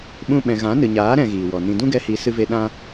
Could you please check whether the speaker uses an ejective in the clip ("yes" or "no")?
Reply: no